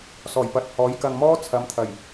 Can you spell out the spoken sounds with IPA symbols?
s ɔː˨˩ j p ɐ˨ t̚ h ɔː˨˥ j k ɐ˧ ŋ m ɔː˥ t͡sʰ ɐ˨˥ m t̪ʰ ɐ˨˩ j

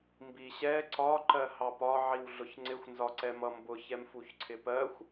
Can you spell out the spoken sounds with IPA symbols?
m b i ɕ ɛ ǀ ɒ ǃ ɜ h ɑ p ɒ ʕ i w ɮ ʊ ç ŋ͡ǀ ɪ xʷ n z ɒ ǀ ɛ m ʌ m b ʊ ç ɛ m f u ç ǀʰ ɪ p ɜ xʷ

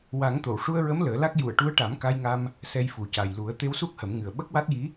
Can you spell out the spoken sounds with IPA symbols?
w a˨˩˦ ŋ t̪ o˨˩˨ w ʂ u˧ ə̯ ɹ ə˧˥ m l əː˨˩˦ l a˦˥ k̚ j u˨˩˨ ə̯ ʈ u˧˥ ə̯ ʈ a˨˩˦ m k a˧ j ŋ a˧ m | s ɛ˧ j f u˨˩ c a˨˩ j l u˨˩˦ ə̯ t̪ e˧ w s u˦˥ k̚ h ə˨˩˦ m ŋ ɨ˨˩ ə̯ ɓ ə˦˥ k̚ w a˦˥ t̚ j i˧˥

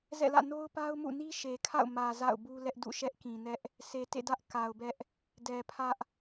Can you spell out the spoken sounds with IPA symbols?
z ɛ̰˦˨ l ä̰˦˨ n o˦ ʊ̯ p a˦ ʊ̯ m ṵ˦˨ n i˦ ʃ e˨ kʰ a̰˦˨ ʊ̯ m ä˨ z a̰˦˨ ʊ̯ b u˦ l ɛ˦ ʔ d ṵ˦˨ ʃ ɛ˦ ʔ k ĩ˨ n ɛ˦ ʔ | s e˨ t ḛ˦˨ d ä˦ ʔ k a˨ ʊ̯ b ɛ˦ ʔ | d ɛ˨ pʰ ä˦ ʔ

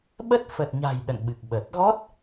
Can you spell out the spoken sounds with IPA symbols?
ɓ ə˦˥ t̚ f ə˨˩ t̚ ɲ a̤˨˩ j ɗ ə̰˧˨ n ɓ ɨ˨˩ k̚ ɓ əː˨˩ t̚ ɣ ɔ˦˥ t̚

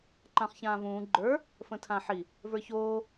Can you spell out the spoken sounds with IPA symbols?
ǃ ã χ ç ãː v ũː ɡ͡ǃ ə˞ | f ə̃ tʰ ã ħ i | v ə˞ ç oː

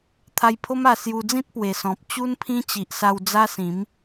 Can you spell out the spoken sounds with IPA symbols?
t̪ʰ a˧ j pʰ o˦ m a˧ s j u˧ d͡z ĩ˦ t̚ p w e˨˩ s ɔ̃˨ p̚ t͡ɕ u˦ n pʰ ĩ˦ t͡ɕ i˨ ʔ s a˧ w d͡z a˦ s ĩ˨˦ m

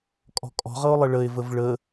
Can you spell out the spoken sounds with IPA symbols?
kʼ ɔ̤ kʼ ɔ̤ ʁ ɤ o̯ lˠ ə ɭ ə e̯ v ə v ɭ ə

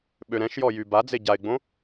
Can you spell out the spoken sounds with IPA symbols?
ɓ ø ɾ ɛ̃ ʃ j ɔ j y b a d͡z e ɟ a ɪ̯ ɡ͡b õ

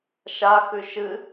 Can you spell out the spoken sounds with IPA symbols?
ʃ a x ʉ ʃ ɨ

